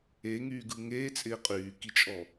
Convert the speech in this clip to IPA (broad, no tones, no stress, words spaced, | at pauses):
eŋyːɡɯ ŋeːt͡sʼɪː qʼyːkit͡ʃʼɔ